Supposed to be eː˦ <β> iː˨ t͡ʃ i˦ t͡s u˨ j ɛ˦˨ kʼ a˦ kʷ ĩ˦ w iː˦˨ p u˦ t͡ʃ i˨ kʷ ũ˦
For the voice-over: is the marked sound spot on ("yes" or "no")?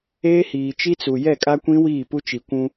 no